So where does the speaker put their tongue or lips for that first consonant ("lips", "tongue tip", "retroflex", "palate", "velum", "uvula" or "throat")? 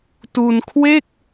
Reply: tongue tip